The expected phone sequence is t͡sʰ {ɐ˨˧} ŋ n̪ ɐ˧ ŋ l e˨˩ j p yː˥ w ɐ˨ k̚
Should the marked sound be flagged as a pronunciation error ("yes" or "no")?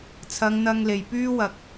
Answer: no